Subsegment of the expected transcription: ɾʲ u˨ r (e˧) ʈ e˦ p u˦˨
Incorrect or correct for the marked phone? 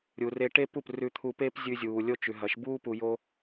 correct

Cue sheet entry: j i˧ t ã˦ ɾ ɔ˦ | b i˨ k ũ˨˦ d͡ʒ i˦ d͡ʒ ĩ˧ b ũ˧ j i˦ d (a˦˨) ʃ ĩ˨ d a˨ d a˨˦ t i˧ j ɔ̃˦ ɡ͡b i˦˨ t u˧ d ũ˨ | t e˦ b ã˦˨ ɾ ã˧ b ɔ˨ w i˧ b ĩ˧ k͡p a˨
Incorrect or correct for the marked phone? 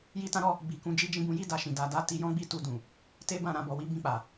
incorrect: a˧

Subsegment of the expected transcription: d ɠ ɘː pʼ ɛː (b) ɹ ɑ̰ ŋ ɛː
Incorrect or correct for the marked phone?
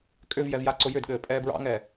correct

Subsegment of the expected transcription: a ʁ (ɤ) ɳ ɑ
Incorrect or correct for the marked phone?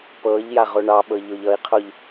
incorrect: o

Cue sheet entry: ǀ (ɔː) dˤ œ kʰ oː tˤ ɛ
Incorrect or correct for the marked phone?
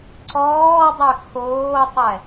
correct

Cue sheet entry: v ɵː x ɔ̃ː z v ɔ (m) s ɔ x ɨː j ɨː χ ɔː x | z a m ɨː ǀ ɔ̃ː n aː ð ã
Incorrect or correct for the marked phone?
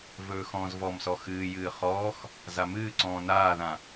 correct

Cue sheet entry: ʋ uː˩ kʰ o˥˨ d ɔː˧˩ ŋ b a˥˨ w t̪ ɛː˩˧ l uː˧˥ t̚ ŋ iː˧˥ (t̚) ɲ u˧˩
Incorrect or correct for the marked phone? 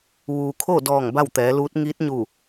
correct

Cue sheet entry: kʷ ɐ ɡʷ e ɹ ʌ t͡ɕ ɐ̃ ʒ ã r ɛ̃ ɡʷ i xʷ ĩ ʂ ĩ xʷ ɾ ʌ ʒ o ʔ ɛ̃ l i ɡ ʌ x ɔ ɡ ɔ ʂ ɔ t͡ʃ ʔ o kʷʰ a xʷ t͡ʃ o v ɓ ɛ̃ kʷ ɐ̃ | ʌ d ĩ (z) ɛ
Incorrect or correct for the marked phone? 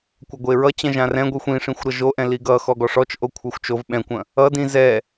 correct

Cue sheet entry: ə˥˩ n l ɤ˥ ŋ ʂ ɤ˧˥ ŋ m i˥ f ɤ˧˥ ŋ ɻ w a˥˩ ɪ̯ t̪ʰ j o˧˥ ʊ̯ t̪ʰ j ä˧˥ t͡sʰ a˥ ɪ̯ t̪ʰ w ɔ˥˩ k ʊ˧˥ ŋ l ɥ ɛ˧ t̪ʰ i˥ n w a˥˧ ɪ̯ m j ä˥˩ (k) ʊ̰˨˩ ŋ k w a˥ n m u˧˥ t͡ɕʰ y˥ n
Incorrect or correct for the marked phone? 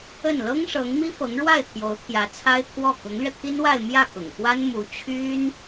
correct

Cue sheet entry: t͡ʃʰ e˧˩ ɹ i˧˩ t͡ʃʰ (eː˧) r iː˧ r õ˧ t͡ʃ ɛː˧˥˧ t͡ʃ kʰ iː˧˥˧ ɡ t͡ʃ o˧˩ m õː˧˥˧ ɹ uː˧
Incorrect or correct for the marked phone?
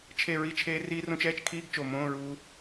correct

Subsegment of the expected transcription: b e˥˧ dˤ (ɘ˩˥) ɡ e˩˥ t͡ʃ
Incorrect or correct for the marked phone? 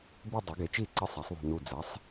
incorrect: e˩˥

